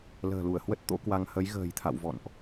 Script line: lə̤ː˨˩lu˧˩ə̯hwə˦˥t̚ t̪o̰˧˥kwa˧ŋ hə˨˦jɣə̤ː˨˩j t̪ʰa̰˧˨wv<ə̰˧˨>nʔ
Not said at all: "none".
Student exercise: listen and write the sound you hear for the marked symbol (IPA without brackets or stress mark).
ɔ̰˧˨